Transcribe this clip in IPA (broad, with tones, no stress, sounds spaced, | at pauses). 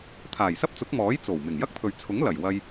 t̪ʰ aː˨˩ j s ɐ˥ p̚ t͡s ʊ˨˥ k̚ m ɔː˨˥ j t͡s o˨˩ w m ɪ˨˩ ŋ j ɐ˥ k̚ t̪ʰ ɵ˨ ɥ t͡sʰ ʊ˨˥ ŋ l ɐ˨˩ j w ɐ˧ j